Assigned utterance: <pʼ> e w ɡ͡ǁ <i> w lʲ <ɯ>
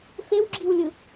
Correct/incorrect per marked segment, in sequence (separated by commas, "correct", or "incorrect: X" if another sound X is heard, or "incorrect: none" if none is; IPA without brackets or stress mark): incorrect: f, correct, correct